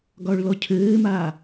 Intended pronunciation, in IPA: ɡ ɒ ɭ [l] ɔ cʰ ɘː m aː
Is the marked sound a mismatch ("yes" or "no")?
no